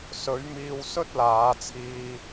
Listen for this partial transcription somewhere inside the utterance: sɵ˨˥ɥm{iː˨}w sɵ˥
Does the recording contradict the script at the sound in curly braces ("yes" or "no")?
yes